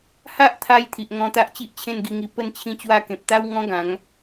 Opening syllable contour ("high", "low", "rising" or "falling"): high